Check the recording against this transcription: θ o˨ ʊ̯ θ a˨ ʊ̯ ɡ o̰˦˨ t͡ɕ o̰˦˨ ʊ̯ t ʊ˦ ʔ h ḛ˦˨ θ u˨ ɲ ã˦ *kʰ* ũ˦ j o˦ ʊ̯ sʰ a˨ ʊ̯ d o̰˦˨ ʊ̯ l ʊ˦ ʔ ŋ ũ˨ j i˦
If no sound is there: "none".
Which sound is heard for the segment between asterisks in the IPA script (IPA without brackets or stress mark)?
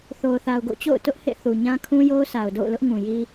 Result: kʰ